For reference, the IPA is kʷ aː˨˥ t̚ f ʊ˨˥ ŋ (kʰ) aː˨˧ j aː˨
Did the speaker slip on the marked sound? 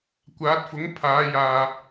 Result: yes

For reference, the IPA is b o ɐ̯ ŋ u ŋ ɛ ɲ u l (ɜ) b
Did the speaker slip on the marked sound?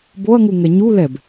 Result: yes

